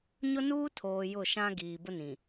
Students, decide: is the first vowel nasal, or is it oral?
oral